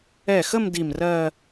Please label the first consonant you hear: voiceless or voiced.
voiceless